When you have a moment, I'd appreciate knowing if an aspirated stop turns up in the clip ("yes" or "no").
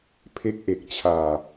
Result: yes